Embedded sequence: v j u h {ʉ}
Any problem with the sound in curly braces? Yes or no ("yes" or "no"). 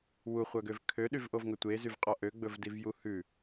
no